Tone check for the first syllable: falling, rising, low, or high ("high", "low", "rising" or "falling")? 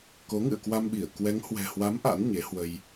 rising